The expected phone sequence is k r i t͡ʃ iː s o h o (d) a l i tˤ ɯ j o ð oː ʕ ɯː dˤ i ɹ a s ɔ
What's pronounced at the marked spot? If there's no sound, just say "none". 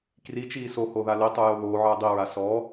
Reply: ð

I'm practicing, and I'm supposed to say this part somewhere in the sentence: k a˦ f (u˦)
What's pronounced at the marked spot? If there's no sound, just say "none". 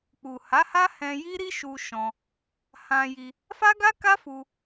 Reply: u˧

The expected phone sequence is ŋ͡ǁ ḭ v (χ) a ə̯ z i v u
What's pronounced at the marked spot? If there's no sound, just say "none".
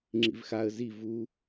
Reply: x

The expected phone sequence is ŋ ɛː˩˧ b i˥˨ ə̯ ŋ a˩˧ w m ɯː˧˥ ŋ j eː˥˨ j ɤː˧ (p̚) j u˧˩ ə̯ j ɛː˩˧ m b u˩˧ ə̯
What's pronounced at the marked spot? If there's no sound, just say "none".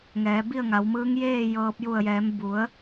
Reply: p̚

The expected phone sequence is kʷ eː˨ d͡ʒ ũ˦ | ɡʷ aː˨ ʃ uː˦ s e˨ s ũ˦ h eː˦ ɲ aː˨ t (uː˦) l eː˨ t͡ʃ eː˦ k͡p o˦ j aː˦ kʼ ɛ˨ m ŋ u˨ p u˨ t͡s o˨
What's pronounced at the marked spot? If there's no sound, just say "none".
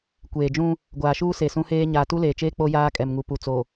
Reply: u˦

